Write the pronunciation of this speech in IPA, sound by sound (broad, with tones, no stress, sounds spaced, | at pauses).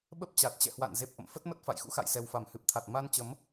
ɓ ə˦˥ p̚ t͡ɕ a˨˩ t̚ t͡ɕ ɛ̰˧˨ h w a̰˧˨ n z e˨˩ p̚ ʔ ə̰˧˨ m f ə˦˥ t̚ m ə˦˥ t̚ f a̰˧˨ j x ṵ˧˥ x a̰˧˨ j s ɛ˨˩ w f a˧˩ m h ɨ˨˩ p̚ t̪ʰ a˨˩ t̚ m a˧ n t͡ɕ ə˨˦ m